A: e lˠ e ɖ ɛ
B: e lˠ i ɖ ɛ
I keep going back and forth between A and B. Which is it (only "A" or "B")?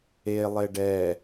A